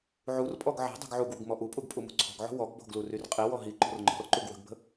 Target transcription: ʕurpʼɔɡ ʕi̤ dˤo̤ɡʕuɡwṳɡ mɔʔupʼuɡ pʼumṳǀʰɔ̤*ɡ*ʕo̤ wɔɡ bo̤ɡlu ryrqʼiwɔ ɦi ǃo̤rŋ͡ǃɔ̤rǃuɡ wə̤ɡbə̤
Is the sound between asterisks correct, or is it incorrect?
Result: correct